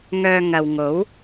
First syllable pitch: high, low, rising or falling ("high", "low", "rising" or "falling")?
low